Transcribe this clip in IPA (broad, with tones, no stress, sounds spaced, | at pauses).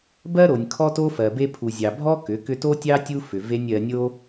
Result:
b ɜ˦ ɾ o˨ nʲ kʰ ɔ˦ t o˦ f ɜ˨ b e˧ pʰ u˨ zʲ ɑ˨ bʱ ɔ˦ k ʏ˨˦ k ʏ˦ t o˦ tʲ ɑ˦ tʲ u˦ f ʏ˨ v e˧ nʲ ɜ˧ nʲ o˦